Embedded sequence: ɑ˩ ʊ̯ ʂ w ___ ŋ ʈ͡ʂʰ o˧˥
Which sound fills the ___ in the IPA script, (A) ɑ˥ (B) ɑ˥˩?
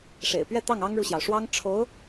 A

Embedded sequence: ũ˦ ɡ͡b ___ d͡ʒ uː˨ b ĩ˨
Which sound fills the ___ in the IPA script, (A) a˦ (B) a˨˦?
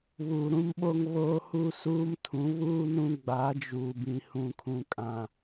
B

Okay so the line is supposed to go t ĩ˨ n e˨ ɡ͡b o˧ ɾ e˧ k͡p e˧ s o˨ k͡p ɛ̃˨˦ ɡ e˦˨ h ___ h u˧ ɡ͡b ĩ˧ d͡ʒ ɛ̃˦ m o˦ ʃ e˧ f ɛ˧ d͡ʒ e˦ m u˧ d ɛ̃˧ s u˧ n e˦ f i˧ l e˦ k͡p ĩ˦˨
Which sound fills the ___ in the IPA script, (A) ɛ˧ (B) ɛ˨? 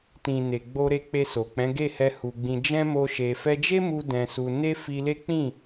A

